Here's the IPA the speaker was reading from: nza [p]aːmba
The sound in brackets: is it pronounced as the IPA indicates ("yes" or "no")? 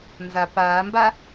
yes